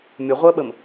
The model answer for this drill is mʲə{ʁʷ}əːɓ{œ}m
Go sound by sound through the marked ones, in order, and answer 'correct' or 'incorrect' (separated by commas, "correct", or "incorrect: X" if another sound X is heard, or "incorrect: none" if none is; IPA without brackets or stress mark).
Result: correct, incorrect: ə